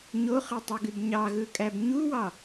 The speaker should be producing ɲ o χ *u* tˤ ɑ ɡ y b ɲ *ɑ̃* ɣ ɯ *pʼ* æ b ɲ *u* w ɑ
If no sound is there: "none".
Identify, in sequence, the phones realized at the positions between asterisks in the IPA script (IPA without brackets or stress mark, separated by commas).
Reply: ɯ, ɑ, kʼ, u